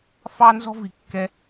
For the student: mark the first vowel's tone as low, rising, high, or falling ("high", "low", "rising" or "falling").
high